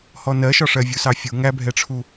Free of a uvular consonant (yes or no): yes